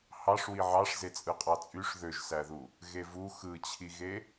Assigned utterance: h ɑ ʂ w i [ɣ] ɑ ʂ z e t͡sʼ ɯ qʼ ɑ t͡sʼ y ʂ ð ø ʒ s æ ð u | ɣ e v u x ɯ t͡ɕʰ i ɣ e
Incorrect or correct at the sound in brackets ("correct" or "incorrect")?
incorrect